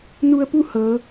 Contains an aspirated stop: no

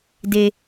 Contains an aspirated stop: no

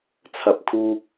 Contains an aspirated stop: yes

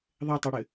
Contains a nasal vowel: no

